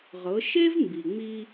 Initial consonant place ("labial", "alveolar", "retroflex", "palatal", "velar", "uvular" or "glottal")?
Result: uvular